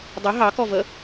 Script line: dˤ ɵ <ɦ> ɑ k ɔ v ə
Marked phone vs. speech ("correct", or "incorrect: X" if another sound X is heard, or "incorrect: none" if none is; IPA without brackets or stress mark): correct